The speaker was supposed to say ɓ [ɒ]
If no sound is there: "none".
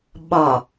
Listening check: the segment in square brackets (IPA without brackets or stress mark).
ɒ